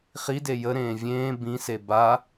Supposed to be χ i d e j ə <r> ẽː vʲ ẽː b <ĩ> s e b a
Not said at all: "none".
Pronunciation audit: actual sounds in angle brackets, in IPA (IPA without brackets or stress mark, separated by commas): ɾ, ĩ